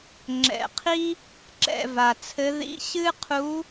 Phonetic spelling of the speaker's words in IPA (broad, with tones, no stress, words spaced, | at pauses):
ŋ͡ǁɛ̰˨˩qʰi˥ | ǁɛ̰˦˨va˨˩t͡sʰɘ˧˥ ðḭ˧˥˧ ɕɨ˥qʰu˧˥